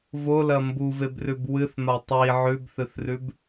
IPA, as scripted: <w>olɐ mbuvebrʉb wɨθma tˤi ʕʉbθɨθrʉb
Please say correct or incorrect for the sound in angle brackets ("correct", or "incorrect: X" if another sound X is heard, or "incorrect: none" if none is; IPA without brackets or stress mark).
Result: incorrect: v